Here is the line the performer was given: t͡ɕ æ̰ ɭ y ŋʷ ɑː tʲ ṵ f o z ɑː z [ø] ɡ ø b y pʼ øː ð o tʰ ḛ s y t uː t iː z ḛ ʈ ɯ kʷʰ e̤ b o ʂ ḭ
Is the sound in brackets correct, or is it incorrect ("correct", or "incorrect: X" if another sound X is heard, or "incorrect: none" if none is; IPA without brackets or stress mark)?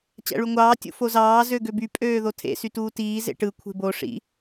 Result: correct